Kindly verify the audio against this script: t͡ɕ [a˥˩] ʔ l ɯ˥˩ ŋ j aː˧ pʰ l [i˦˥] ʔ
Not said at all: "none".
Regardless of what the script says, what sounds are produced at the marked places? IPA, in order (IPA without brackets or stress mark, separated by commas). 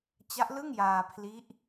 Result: a˦˥, i˦˥